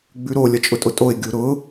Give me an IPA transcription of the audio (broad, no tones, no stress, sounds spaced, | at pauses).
ɡ͡b ʉ ɾ o lʲ ʌ t͡ʃʼ ʊ tʼ ʊ tʼ o ɪ̯ ɡʲ u ɾ ʊ